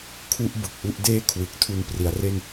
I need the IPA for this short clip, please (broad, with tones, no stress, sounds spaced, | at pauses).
kʰ u˥˩ ʔ b ɯ˨˩ k̚ ʔ u˥˩ ʔ d eː˥˩ kʰ w ɯ˨˩ k̚ tʰ u˧ n p r i˩˦ a̯ r e˥˩ n